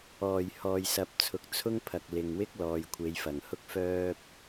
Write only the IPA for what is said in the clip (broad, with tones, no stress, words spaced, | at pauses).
ɔː˨˩jhɔː˨jsɐ˨˥p̚t͡sʰʊ˨k̚ t͡sʰʊ˥ŋpʰɐ˨k̚lɪ˨ŋwɪ˥k̚ lɔː˨jkʷʰe˨˧jfɐ˨˩ŋhʊ˥k̚ fœː˥p̚